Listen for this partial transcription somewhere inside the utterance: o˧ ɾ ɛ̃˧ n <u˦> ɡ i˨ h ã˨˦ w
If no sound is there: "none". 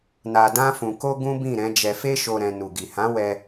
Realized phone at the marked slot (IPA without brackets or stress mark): u˨